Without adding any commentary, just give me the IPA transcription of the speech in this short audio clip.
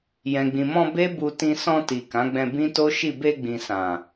j ɛ̃˨ ɡ͡b ĩ˨ m ɔ̃˧ b e˦ b u˧ t ĩ˧ s ɔ̃˧ t i˨ k ã˨˦ ɡ͡b ɛ̃˧ b ĩ˦ t o˦ ʃ i˦˨ b e˧ ɡ͡b ĩ˨ s ã˨

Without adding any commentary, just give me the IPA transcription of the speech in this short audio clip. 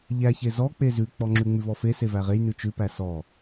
ʎ æ ç e z ɔ k͡p e z ʉ k͡p ɔ ŋ͡ǁ ʉ ŋ͡m ʉ v ɔ f e s e v æ ʁ e j n ʉ t͡ʃ ʉ p æ s ɔ

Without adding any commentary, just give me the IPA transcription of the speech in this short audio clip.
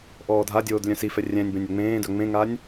ʔ ɔː dʱ a dʲ oː d lʲ œ̃ s i f ɛ rʲ ɛ̃ nʲ b ɛ̃ nʲ œ ŋ͡m ẽː d œ ŋ͡m ẽ ŋ a nʲ

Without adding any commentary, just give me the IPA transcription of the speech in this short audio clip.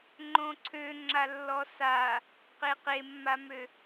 ŋ͡ǃ õ ǀʰ ø ŋ͡ǁ a lː ɔ s a | q e q e mː a m ø

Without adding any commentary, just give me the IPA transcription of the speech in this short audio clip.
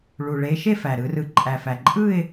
ɭ u˨˩ ɭ e˨˦ ʃ e˥˧ f æ˨˩ ɾ ɯ˨˦ r ɯ˨˦ ǃʼ æ˨˩ f æ˨˩ ǃʼ ɯ˥˧ ɪ̯

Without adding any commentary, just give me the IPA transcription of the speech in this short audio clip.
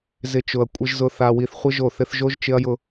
z ɪ˨˦ t͡ʃ ʊ˨ ɐ̯ kʷʼ ɪ˨ ʒ z ʊ˨ θ a˨ w i˨ θ χʷ ɪ˦ ʒ o˦˨ θ ɪ˦ θ ʒ o˦ ʒ t͡ʃ ɪ˦ ɐ̯ j ʊ˦

